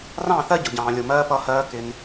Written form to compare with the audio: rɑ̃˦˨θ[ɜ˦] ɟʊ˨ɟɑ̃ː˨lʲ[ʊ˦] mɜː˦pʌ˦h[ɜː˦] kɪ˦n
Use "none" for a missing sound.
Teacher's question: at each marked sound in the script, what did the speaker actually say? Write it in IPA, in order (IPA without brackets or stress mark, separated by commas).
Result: ɜ˦, ʊ˨, ɜː˦